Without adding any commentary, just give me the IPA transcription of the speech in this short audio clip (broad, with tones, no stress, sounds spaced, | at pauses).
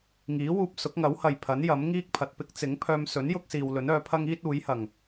ŋ iː˨˥ w uː˧ p̚ s ʊ˨˥ k̚ ŋ ɐ˨˥ w h ɐ˨ j pʰ ɐ˨˥ n j ɐ˨˥ m ŋ iː˥ k̚ pʰ ɐ˨ t̚ p ɪ˥ k̚ t͡s ɪ˨˥ ŋ pʰ œː˧ m s ɵ˨˥ n j ʊ˥ k̚ s iː˨ w l ɵ˨˥ n œː˨˧ pʰ ɐ˥ ŋ iː˥ t̚ uː˨˥ j h ɐ˨˩ ŋ